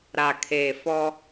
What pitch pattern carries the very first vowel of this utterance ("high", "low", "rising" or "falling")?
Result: low